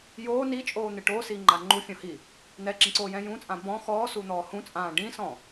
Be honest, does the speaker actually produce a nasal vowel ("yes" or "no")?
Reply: yes